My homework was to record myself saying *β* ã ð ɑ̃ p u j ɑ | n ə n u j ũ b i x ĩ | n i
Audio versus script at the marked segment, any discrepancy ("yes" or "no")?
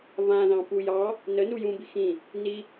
no